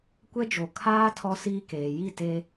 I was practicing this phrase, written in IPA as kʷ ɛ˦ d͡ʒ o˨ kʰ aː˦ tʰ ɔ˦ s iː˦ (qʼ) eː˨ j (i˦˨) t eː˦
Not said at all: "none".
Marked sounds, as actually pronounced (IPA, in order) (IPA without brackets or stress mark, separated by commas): k, i˦˨